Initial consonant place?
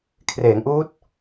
velar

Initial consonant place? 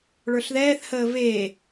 retroflex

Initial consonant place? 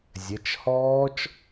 alveolar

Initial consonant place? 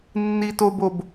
alveolar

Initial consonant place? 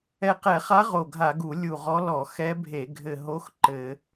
uvular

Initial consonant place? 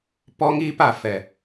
labial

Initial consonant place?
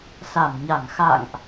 alveolar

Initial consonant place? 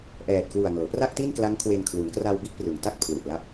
glottal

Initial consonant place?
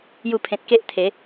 palatal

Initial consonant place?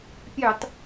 labial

